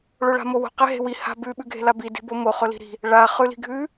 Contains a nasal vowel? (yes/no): no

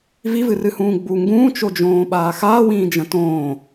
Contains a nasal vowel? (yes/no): yes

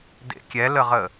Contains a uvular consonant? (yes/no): yes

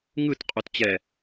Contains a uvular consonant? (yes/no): yes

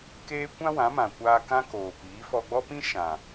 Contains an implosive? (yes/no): no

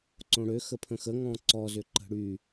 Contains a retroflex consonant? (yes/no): yes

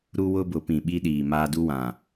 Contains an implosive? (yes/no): yes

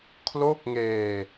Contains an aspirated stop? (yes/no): yes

